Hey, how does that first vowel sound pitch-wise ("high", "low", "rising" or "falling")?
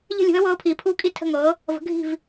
falling